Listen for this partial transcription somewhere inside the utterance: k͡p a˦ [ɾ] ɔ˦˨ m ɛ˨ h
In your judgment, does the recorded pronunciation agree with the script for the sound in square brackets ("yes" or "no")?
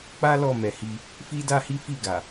no